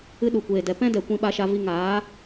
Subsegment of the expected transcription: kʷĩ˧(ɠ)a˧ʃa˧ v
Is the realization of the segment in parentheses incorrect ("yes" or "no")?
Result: yes